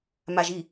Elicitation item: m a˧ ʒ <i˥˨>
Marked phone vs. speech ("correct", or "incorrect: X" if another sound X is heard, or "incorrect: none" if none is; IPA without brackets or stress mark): correct